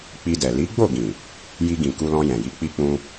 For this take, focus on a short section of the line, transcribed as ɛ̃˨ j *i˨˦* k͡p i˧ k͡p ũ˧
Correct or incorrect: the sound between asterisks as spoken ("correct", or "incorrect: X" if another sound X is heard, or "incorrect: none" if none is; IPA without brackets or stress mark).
correct